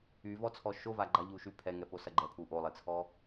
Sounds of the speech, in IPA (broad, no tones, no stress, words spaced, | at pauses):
yvɔt͡sʰɔ ʃova ɡ͡ǃaʎuʃy pʰɛŋɛposɐ ɡ͡ǃɛpʰu ʔolˠet͡sʰɔ